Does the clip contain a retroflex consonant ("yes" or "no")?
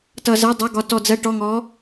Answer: yes